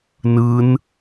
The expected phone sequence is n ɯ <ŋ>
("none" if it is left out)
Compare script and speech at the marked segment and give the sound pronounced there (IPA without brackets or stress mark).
n